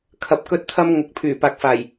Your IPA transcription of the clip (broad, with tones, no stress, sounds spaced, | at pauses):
kʰ ɐ˧ p̚ k ɵ˥ t̚ t̪ʰ ɐ˥ m ŋ ʊ˨ k̚ pʰ yː˨˩ p aː˨ k̚ f aː˨˩ j